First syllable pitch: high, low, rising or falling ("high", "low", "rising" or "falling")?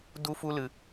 high